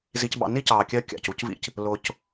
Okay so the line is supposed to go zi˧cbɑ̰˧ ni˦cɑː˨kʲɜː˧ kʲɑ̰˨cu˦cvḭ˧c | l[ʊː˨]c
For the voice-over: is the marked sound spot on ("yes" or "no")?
yes